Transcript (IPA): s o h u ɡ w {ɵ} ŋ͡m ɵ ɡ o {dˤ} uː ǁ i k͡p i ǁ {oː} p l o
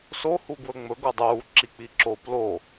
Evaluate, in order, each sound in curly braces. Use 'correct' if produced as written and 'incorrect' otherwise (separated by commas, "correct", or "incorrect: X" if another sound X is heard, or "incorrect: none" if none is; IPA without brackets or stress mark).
correct, correct, correct